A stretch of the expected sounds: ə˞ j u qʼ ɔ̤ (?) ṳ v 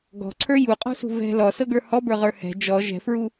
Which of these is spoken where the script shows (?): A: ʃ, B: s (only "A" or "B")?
B